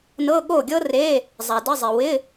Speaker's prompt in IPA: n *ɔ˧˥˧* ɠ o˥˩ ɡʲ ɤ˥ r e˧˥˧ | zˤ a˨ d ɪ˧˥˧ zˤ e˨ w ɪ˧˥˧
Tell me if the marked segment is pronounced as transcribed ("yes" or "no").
no